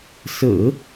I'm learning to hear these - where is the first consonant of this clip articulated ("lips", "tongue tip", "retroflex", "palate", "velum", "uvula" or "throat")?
tongue tip